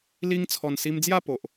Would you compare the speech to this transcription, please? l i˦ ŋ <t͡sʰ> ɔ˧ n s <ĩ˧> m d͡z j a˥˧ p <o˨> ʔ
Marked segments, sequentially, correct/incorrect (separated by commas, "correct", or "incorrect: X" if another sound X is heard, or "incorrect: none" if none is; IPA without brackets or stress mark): correct, incorrect: i˧, correct